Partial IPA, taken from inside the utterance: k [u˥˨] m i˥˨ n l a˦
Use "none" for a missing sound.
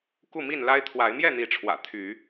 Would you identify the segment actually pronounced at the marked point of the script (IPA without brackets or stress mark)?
u˥˨